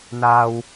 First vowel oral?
yes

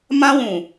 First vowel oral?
no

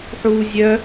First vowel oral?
yes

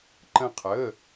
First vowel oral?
no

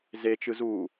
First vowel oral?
yes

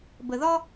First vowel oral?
yes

